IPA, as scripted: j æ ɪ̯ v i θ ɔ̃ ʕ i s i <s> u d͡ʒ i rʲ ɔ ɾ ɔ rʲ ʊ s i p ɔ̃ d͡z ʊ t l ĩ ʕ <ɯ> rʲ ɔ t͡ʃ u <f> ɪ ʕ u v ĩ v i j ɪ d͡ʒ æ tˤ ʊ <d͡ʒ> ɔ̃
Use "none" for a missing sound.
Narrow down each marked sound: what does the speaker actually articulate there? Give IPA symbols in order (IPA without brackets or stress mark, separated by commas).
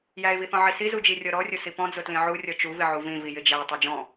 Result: z, u, v, d͡ʒ